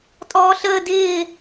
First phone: tʼ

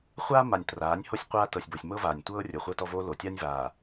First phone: χʷ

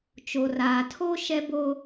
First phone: t͡ʃ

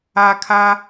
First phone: a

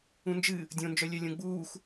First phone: ũ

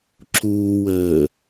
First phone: ǁ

